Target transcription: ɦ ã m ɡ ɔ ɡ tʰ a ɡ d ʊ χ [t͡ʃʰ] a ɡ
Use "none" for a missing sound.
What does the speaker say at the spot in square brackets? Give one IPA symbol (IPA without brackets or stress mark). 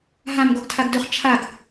t͡ʃʰ